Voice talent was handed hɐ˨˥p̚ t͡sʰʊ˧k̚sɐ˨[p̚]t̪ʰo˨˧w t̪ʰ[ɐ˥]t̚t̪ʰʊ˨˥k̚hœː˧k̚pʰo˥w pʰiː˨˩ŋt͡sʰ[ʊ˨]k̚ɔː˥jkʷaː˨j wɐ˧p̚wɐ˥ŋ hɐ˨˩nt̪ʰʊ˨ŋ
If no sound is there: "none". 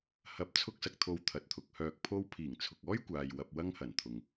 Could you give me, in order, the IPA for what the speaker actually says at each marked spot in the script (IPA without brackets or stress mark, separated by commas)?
k̚, ɐ˨, ʊ˨